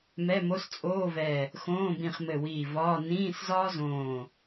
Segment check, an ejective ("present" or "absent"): present